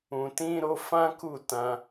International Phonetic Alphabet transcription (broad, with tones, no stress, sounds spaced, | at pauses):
ũ˨ t ĩ˧ ɾ o˧ f ã˦ k u˦˨ t ã˧